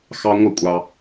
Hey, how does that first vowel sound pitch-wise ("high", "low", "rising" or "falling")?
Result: high